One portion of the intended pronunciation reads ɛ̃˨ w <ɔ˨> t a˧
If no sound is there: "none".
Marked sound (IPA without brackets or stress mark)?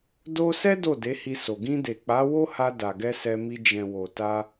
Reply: o˨